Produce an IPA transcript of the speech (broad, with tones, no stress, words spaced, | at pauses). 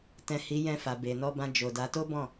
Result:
tɛ̃˨ hi˨˦jɛ̃˧fa˨ be˨ nɔ˧bã˧d͡ʒo˨da˨˦ to˦bɔ̃˦˨